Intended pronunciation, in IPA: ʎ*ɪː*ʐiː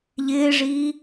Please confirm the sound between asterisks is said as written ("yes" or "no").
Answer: yes